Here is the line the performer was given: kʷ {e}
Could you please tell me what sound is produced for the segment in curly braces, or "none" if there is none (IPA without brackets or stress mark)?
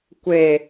e